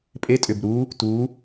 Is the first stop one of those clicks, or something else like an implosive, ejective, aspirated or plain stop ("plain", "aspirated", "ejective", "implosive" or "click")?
ejective